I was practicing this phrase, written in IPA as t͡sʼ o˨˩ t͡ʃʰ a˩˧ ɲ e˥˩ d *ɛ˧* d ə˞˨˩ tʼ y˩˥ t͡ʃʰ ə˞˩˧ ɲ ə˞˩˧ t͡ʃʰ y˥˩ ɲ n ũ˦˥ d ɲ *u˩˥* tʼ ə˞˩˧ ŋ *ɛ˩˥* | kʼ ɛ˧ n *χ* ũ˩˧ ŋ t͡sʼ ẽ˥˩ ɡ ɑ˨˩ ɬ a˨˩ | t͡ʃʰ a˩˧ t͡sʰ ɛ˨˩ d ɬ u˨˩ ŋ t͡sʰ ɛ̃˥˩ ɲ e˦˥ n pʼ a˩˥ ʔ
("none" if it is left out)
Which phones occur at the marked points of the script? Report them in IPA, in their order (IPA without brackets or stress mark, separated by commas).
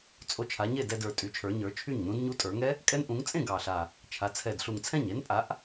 ɛ˧, u˦˥, ɛ˦˥, ʔ